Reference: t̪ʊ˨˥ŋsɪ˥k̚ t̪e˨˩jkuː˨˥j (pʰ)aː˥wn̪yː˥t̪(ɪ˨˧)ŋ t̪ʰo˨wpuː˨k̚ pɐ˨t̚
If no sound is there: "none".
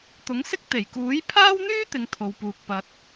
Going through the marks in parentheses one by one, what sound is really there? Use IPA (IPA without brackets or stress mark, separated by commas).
pʰ, ɪ˨˧